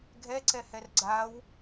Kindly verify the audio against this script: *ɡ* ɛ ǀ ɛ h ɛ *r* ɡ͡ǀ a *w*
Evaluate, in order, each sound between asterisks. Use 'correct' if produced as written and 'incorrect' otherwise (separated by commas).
incorrect, correct, correct